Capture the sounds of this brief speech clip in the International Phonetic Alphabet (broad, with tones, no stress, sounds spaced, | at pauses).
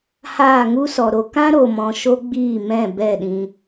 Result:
h aː˦˨ ŋ u˦ s ɔ˨ ɾ o˧ k ã˦ ɾ o˨ m ɔ̃˨ ʃ o˦ ɡ͡b iː˦˨ m ɛ̃˦˨ b ɛ˦˨ ɗ ĩ˧